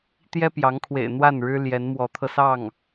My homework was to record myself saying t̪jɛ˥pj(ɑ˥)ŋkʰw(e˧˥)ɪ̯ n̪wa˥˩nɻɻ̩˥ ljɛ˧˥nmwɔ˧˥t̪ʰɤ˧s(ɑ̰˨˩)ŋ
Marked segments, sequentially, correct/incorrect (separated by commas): incorrect, incorrect, incorrect